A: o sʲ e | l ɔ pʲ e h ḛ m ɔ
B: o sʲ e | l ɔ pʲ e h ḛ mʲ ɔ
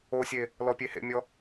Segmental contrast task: B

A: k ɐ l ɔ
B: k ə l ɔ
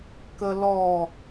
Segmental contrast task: B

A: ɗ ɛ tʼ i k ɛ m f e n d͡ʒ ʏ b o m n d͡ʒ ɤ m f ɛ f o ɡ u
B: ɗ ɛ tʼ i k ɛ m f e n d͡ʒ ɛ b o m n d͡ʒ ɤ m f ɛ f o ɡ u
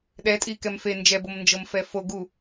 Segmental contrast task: B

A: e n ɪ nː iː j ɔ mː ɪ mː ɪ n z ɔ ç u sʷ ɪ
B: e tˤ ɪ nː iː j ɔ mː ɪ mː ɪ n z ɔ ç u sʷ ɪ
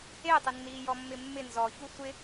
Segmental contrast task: B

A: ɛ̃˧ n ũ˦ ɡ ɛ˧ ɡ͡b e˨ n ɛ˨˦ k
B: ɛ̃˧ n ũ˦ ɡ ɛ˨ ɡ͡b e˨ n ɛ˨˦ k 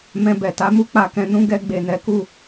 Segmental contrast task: A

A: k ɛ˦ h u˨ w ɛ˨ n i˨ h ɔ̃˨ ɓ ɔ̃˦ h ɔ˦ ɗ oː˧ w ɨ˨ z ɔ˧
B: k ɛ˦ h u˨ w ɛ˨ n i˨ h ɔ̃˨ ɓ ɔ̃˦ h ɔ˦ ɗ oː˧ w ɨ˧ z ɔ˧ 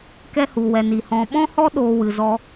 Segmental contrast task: A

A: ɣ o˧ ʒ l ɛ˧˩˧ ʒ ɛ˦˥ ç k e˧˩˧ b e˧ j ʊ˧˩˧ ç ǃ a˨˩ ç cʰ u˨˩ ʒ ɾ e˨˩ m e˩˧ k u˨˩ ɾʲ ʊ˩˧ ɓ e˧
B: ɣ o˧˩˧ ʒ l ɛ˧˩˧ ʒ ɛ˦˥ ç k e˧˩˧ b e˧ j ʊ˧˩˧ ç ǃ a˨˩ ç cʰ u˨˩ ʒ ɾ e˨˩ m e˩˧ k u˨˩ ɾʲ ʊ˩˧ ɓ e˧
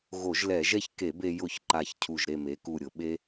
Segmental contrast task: B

